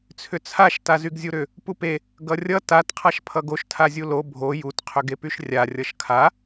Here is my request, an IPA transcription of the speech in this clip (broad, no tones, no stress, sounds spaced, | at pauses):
t͡sʰ ʏ t͡sʰ a ʃ t a z y ɡ zʲ u ɾ ʏ | p u p e | ɡ ʌ rʲ ʌ t a t qʰ a ʃ pʰ ʌ ɡ o ʃ tʰ a zʲ u l o bʱ o j u t qʰ ʏ ɡ e p y ʃ rʲ a rʲ ʌ ʃ kʰ a